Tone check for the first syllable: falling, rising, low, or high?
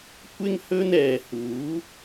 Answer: high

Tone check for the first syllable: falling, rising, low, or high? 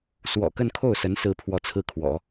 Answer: low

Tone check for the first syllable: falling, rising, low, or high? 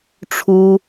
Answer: high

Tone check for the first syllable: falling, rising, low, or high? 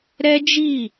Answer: high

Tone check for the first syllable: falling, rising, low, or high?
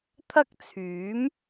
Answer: high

